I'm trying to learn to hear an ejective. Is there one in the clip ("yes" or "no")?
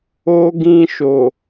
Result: no